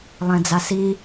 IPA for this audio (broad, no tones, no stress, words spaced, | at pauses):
lˠẽd͡zasi